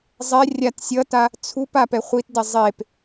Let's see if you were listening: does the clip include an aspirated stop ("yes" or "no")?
yes